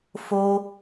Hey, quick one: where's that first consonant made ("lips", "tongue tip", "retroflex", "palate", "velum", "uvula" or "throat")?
lips